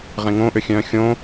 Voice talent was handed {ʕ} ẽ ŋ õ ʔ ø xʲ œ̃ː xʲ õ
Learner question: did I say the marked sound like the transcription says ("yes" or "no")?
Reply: no